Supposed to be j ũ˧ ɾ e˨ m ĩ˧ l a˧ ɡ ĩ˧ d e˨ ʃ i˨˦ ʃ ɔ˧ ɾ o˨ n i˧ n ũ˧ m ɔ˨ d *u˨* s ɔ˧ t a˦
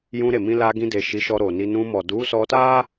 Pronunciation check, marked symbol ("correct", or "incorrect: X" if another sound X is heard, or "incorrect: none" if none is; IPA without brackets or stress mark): incorrect: u˨˦